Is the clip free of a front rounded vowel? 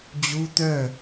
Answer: no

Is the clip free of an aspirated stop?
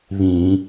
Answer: yes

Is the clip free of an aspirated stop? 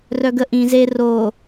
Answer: yes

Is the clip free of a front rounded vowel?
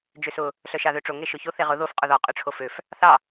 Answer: no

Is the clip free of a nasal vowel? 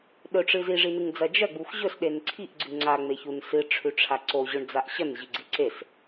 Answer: yes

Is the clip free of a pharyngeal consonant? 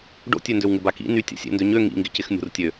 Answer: yes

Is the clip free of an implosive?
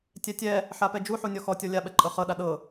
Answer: no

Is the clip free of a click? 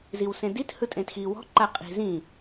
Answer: no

